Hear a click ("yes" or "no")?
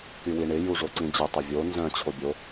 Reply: yes